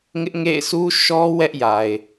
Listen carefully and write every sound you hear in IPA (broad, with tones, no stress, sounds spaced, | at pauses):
ŋ ɪ˦ ʔ ŋ ḛ˦˨ ɪ̯ s u˦ ʃ ɔ˦ w ɛ˦ ʔ j a˨ ɪ̯